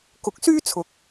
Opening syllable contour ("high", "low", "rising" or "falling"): rising